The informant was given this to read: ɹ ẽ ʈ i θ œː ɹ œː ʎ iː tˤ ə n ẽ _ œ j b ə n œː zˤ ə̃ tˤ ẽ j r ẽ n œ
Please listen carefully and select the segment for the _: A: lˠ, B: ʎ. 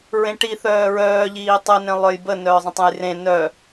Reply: A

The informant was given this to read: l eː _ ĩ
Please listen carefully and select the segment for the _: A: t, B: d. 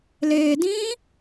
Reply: B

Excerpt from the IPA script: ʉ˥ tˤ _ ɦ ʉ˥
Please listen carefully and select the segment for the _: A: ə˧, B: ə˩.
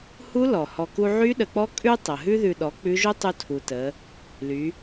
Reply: B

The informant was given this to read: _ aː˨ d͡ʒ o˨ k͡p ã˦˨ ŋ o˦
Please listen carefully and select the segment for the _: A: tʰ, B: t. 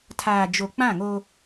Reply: A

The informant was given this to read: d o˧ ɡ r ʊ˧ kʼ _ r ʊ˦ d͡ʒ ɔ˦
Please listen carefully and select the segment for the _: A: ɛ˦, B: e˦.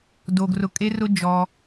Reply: B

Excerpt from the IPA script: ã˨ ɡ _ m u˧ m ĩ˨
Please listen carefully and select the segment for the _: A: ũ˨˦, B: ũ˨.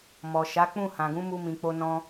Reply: A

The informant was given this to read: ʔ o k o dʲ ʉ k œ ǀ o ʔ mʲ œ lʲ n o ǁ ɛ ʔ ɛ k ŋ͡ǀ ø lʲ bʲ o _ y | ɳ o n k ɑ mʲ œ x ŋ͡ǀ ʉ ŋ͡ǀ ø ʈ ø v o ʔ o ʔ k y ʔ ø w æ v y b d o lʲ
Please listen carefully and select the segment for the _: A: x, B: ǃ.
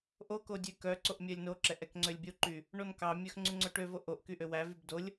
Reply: B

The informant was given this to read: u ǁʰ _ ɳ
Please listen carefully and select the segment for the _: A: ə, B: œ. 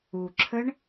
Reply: A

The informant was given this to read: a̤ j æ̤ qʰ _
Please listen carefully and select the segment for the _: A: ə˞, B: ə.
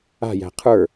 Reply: A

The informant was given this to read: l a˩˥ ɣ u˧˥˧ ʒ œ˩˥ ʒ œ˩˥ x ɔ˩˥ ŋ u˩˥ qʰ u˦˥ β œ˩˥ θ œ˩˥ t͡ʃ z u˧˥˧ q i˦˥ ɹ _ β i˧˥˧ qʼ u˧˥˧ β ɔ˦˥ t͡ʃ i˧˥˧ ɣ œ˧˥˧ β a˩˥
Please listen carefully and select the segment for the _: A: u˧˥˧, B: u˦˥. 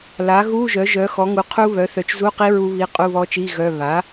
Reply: B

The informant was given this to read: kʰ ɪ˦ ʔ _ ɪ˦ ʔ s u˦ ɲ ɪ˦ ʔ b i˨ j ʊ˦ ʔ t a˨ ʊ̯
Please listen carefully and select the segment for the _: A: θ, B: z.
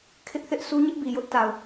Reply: A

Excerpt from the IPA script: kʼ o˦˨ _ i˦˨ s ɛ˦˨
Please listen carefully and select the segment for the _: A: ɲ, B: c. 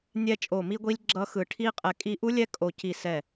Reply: B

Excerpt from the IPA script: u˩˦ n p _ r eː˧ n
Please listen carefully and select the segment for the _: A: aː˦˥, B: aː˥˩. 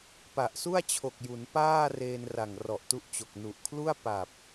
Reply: B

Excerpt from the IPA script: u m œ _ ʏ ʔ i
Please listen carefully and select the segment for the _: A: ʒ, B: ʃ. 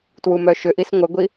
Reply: B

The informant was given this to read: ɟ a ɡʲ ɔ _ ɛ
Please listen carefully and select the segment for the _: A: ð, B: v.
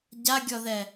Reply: A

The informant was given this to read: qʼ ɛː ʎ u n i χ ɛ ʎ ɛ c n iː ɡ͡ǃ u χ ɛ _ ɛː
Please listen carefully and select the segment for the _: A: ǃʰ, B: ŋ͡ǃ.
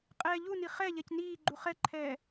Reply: A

